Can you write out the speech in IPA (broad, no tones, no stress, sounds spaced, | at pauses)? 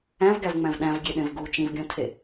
æ̃ v ɡ æ v ŋ͡m æ̃ v ɗ æ̃ v ɡʲ e ɗ ẽ v ɡ u t͡ʃ ĩ v ɡʲ õ tʰ e